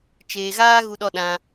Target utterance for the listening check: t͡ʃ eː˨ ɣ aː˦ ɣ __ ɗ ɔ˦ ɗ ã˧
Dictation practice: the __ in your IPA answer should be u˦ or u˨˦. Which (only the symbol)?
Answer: u˦